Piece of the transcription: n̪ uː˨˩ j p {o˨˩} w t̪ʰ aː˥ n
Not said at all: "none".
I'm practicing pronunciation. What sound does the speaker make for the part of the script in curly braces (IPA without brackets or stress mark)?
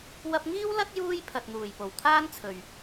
o˨˩